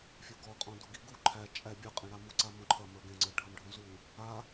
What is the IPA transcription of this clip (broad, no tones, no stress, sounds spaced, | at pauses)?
fʲ o ɡ ɔ qʼ ɔ̃ d u ɡ i ɡ u ǃʰ æ t͡ʃʼ æ bʲ ə˞ qʼ ẽ ɽ a m u ǀ a m õ ǃʰ ɐ m ə˞ ɡ ẽ ŋ͡ǀ ə˞ ɖʱ ɐ m ɖʱ õ z u | a